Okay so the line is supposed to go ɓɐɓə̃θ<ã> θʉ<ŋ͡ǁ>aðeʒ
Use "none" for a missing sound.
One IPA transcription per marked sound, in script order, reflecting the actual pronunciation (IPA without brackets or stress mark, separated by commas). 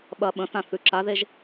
ã, ǁ